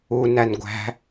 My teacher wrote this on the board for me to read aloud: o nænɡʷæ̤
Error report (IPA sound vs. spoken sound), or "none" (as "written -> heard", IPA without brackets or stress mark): o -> u